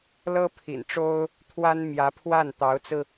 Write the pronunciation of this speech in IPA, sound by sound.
lɤ˥pʰḭ˨˩nʈ͡ʂo˥ʊ̯ | t̪ʰwa˥nmjä˧˥pʰwa˥˩n t̪ɑ˧˥ʊ̯t͡sɹ̩˧

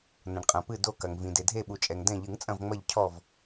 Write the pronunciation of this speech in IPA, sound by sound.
nɐ̃˩ɳqʼɐ̃˩ pɨ˧˩do˧˩kɐ˩ŋvĩ˩ de˩dʱe˧˩ɓu˩t͡ʃʼɛ˩ŋ dɛ̃˧˩ʎɨ˨˩˦ŋ t͡sʼɐ̃˧˩vŋ͡mɐ˧˩ʎ cʰɔ˧˩v

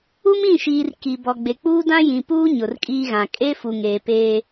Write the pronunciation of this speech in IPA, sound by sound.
u˦mĩ˦˨ʃiː˨r ki˨ bɔ˨ɡ͡be˨k͡puː˦ dã˦jĩ˨puː˦ ɲʊ˨rkʼiː˦ɣã˨ kʼe˦ fu˨ŋeː˨peː˦

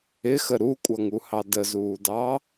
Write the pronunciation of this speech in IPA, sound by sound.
ɪxə ɾukʷʼʌŋuhɑ dəzuːdɑ

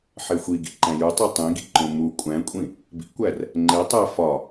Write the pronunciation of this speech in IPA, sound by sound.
ħexʷiɡḭ ǃæ̃jutˤo tˤĩɡḭǃõ mu kʷʼæ̃kʷʼĩ | bḭkʷær | ŋ͡ǃe tˤæ fɒ

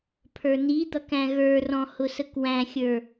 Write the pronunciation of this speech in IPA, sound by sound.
pʰə˞nid̪ʌk æ̃ɣə˞rɔ̃ hʊsəkwæ̃xʲə˞

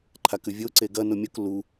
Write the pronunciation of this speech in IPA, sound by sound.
ǃʰakʉvʲo ǀeɡɐ nomʲok lu

